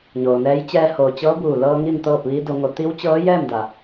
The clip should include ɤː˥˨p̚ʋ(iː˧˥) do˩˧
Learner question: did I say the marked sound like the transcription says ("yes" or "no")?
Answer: yes